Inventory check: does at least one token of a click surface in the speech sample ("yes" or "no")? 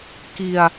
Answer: no